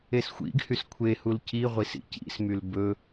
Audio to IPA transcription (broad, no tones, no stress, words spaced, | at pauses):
esxʷḭɡhys kʷʰehul ciʁʷis ḭcḭsmyl bɵ